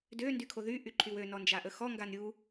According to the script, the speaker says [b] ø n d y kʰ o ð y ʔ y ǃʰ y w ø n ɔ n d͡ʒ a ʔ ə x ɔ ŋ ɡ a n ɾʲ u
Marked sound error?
yes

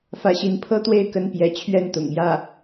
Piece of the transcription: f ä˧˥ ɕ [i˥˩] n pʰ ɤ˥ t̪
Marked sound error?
yes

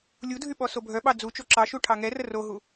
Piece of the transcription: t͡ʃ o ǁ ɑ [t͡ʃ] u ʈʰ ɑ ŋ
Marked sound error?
yes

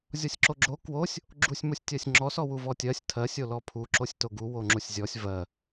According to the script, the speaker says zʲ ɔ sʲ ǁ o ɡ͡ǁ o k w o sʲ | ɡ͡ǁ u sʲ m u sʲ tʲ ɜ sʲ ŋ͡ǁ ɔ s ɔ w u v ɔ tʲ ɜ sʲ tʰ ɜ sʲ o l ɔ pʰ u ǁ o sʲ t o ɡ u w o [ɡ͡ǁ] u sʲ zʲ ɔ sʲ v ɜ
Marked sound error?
yes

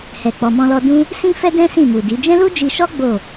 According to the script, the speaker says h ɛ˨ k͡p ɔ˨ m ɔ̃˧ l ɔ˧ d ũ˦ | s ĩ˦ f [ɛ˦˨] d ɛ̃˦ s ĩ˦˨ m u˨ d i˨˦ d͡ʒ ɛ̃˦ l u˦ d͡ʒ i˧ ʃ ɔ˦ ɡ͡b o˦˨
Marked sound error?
yes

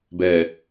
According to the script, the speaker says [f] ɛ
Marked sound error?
yes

